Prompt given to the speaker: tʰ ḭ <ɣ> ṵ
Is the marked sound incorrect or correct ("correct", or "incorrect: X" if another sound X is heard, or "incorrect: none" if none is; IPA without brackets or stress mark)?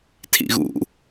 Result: correct